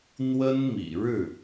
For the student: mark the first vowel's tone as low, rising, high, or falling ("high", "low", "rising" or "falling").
high